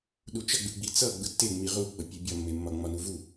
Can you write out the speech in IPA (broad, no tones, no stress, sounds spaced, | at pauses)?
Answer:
ɗ u t͡ʃ ʌ ɡ͡b ɯ ɡ͡b i t͡s ʌ ɡ͡b ɯ tː e ŋ͡m i ʁ u ɡ͡b ʌ pʲ e bʲ ɒ mː e mː ɒ ŋ͡m ɒ n u v u